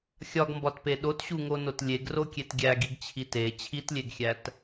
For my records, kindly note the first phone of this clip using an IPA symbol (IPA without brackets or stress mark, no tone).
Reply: xʲ